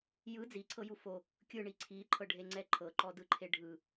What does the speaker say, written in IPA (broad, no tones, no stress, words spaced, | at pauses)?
jɯ d͡ziǀʰɤju fo | kʲɯɳi ǀʰiǃʰɤɖʱeŋ͡ǀɛ ǃʰɤǃɔdɯǃʰe ɖʱɯ